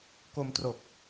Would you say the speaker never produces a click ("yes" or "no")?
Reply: yes